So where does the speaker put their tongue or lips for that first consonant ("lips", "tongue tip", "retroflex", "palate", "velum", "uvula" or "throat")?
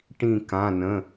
retroflex